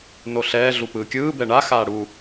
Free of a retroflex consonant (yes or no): no